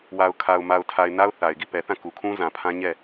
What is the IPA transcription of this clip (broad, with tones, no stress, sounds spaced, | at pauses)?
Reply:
w a˨ ʊ̯ kʰ a˨ ʊ̯ m a˨ ʊ̯ tʰ a˨ ɪ̯ n a˦ ʊ̯ θ a˨ ɪ̯ ɡ i˦˨ p ɛ˨ θ ã˦˨ k u˨ kʰ ũ˦ z ã˨ pʰ ã˦ ɲ ɛ˦˨